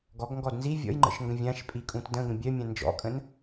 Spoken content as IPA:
ɡ ɔ ɡ ŋ ɡ ɔ d n z i vʲ ɔ̰ j ŋ͡ǃ ə̰ ʃ ŋ ɡ ə̃ vʲ ã ʃ pʼ i kʼ ũ t d ə̃ ɡ ə̃ bʲ œ mʲ ã n d͡ʒ ɔ̰ kʼ ə̃ n

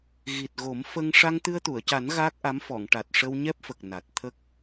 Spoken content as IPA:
ɣ i˨˩ t̚ ɣ o˨˩˦ m f ə˧ ŋ ʂ a˧ ŋ t̪ ɨ˧ ə̯ t̪ u˨˩˨ ə̯ c a˨˩˦ n ɣ aː˦˥ k̚ ʔ a˧˥ m f ɔ˨˩˨ ŋ ʈ a˨˩ t̚ ʂ ə˧ w ɲ ɛ˦˥ p̚ f ə˨˩ k̚ n a˨˩ t̚ t̪ʰ ə˦˥ k̚

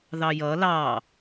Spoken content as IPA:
ð ɑ j ʌ l ɑ

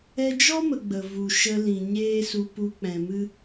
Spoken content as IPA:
ɛ˧ d͡ʒ ɔ˦ m ə˨ ɡ͡b ə˨ v u˨ ʃ ə˧ l ĩ˨ ɲ eː˦ s u˧ p u˧ k͡p ɛ̃˨ m ɨ˦

